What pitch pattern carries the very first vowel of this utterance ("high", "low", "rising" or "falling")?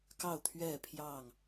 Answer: falling